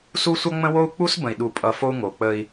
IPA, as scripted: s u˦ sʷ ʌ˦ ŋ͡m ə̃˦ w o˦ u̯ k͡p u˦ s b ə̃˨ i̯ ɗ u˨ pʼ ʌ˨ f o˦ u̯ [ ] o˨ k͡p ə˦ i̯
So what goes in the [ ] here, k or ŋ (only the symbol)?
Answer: ŋ